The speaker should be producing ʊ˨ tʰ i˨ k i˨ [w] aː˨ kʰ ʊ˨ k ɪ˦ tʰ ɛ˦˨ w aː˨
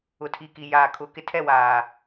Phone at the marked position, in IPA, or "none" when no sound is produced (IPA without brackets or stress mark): j